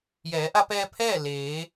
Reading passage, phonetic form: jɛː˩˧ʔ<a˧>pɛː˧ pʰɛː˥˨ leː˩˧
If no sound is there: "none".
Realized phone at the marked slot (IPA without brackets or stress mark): a˧